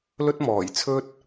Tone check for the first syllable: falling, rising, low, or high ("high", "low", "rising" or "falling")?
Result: high